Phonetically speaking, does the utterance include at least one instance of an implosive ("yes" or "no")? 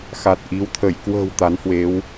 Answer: no